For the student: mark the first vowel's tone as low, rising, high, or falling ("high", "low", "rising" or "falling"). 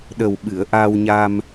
low